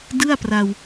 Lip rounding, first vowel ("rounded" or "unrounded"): unrounded